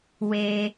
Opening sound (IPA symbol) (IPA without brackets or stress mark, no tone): w